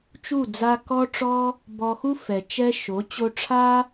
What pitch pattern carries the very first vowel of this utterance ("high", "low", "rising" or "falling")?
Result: falling